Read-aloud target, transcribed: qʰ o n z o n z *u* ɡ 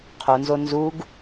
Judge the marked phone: correct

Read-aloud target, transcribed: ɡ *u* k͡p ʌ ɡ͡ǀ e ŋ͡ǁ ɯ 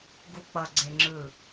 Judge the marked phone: correct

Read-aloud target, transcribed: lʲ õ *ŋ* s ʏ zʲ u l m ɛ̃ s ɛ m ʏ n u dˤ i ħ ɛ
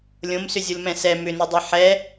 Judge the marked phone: incorrect: m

